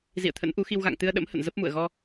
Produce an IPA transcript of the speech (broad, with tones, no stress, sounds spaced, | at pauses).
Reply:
z ḭ˧˨ ə̯ t̪ʰ ə̰˧˥ n ʔ u˨˦ x i˧ w ɣ a̰˧˨ ŋ t̪ ɨ˧ ə̯ ɗ ə̰˧˥ m h ə̰˧˨ n z ə˦˥ p̚ m ṵ˧˨ ə̯ ɣ ɔ˧